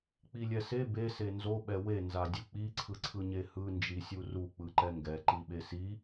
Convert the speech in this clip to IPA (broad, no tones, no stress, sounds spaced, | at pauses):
k͡p i lʲ ɛ s e b e s e n z o ɓ ɛ w e n z a dʲ ɯ k͡p i ǀʰ ɯ ǀʰ ɯ ɲ e h ɯ n d͡ʒ i sʲ u r u k͡p ɯ ǃ ɛ ŋ ɡ ɛ ǃ i ɓ e s i